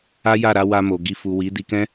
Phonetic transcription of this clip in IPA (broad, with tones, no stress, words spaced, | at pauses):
a˦ja˦˨ ɾa˧ wa˧mo˨ ɡi˧ fu˨ wi˨˦ di˧kɛ̃˦